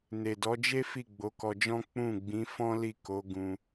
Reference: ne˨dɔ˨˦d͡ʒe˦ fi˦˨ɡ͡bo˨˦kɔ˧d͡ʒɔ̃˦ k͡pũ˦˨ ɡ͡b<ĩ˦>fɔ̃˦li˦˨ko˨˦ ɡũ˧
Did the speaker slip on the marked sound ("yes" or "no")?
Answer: yes